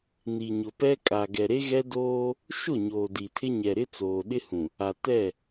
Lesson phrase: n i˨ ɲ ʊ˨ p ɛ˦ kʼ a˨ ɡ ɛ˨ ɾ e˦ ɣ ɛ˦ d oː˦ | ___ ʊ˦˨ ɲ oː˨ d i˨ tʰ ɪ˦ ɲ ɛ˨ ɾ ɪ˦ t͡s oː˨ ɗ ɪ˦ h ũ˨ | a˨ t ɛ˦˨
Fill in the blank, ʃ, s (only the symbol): ʃ